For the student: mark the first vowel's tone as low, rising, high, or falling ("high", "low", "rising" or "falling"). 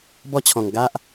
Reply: high